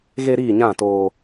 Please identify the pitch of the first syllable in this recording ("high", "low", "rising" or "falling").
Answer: high